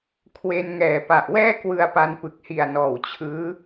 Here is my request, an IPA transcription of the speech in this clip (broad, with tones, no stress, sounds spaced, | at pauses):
kʰ w e˧ n ŋ ɛː˨˩ p a˨˩ ʔ w ɛː˥˩ k w ɯ˧ a̯ p a˧ n p ɯ˨˩ k̚ h i˨˩ a̯ n ɔː˨˩ w t͡ɕʰ ɯː˦˥